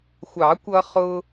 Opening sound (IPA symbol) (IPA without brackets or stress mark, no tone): xʷ